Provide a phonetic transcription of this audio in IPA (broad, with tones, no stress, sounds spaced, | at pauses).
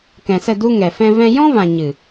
k ɛ̃˨ s ə˦˨ d u˧ ŋ ɛ˨ f ɛ̃˧ v ɛ̃˧ j ɔ̃˦ v ã˨ ɲ ɨ˨